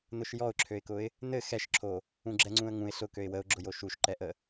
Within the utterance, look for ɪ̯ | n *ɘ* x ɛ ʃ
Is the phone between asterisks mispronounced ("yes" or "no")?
no